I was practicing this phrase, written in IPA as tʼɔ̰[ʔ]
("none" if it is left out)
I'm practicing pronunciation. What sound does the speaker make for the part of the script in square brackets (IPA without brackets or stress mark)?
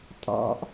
ʔ